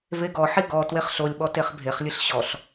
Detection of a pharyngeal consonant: present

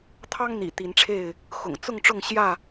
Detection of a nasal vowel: absent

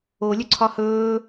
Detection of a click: present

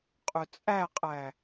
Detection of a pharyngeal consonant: absent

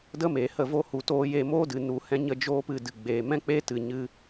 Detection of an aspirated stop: absent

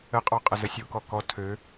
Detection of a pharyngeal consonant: absent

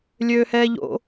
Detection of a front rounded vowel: present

